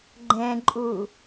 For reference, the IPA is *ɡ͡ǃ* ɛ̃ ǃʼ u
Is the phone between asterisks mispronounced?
no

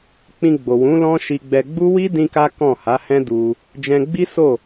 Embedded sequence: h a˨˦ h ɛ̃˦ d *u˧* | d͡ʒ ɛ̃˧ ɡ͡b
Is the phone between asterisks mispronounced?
no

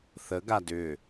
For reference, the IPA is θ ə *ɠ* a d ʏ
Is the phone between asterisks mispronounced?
yes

